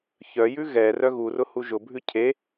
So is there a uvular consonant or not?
no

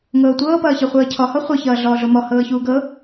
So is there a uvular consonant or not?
yes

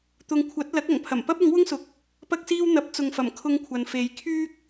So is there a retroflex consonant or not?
no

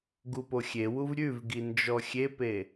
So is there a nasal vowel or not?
no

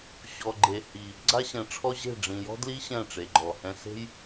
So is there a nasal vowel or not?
yes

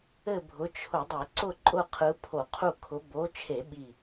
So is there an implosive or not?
yes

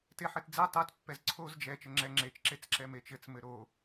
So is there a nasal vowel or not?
no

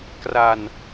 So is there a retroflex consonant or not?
no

